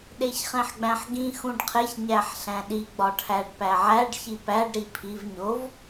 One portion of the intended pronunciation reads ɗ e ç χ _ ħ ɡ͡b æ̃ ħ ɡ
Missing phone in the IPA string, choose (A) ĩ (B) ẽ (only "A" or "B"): B